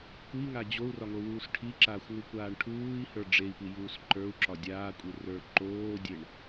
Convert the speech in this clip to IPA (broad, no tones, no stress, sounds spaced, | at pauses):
kʷ i ŋ a d͡ʑ o u̯ r ɒ ŋ o w uː s ʈʰ i ǁ aː xʷ ŋ u kʷ aː ɳ ʈʰ uː i̯ h ə˞ ɖ͡ʐ e i̯ p i j uː s ǃ ə˞ u̯ ǁ ɒ dʲ aː kʷʼ i r ə˞ ǃ oː dʲ e ɳ